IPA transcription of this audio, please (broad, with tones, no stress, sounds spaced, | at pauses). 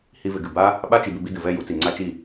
h i˧ v ɪ˨ ɡ ɨ˨ b a˦ | ɓ a˦ t͡ʃ i˨ b ɪ˧ b i˧ d ɨ˨ v ɛ˦˨ j u˨˦ t͡s i˨ ŋ͡ǀ a˦ t͡ʃ i˦˨